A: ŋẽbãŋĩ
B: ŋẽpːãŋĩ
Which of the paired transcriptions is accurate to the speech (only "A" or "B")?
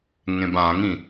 A